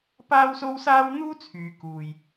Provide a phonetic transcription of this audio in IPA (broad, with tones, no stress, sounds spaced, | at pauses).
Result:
p aː˥ w s o˥ w s aː˥ w n̪ uː˥ t͡sʰ yː˨ k uː˨ j